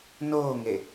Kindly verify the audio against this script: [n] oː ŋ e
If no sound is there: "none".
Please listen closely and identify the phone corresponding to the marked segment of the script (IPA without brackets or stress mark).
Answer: n